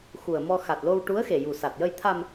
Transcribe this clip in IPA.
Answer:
x u˨˩ ə̯ m ɔ˧ x a˨˩ t̚ l o˧ w ʈ u˧˥ ə̯ x e˨˩ j u˨˩ s a˨˩ t̚ j ə˧ j t̪ʰ a˧ m

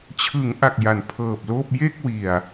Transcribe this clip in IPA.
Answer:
t͡ɕʰ ɯ˩˦ ŋ ʔ a˨˩ k̚ j a˩˦ n pʰ ɤː˨˩ p̚ l oː˥˩ p̚ j e˥˩ k̚ w i˨˩ a̯

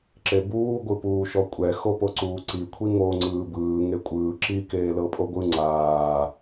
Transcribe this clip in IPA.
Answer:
ǁ e b uː ɡʷ ɯ p uː ʃ ɔ kʷʼ ɛ x o p o ǀ uː ǀ i kʷʰ i ŋ o ŋ͡ǀ ɯː b ɯː ŋ e kʷʼ ɯː ǁ i k eː l ɤ pʼ o ɡʷ ɯ ŋ͡ǀ aː

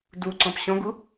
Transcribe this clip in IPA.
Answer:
d u ǀ ɔ̃ p ɕ ɔ̃ ɡ u

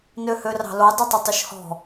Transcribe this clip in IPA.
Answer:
n ø h ø r ɑ̤ l o dˤ u tˤ ɵ tˤ ʉ ʃ h ɔ̤

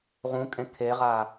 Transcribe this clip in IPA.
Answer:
ʁ ũ kʼ ẽ kʰ e ʁ a

